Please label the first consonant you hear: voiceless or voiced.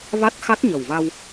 voiced